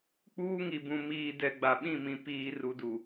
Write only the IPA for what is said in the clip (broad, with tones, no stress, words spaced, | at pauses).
k͡puː˦ŋi˨bũ˨ miː˨dɛ˨ ɡ͡ba˨ɓĩ˦˨mĩ˨ piː˨ ru˨du˨